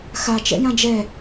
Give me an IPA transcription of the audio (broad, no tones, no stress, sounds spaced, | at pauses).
x a t͡ʃ ɛ̰ j ã d͡ʒ ɛ